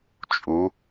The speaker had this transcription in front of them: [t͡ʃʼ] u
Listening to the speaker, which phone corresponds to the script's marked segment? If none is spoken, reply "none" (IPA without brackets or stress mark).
t͡ʃʼ